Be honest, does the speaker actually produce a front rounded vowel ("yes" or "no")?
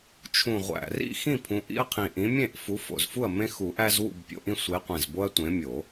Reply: no